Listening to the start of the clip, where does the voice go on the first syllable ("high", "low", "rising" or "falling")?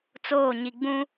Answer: falling